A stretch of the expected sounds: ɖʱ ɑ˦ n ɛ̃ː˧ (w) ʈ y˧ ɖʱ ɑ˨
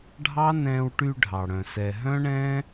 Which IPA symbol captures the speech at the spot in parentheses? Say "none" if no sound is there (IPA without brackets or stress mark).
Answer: w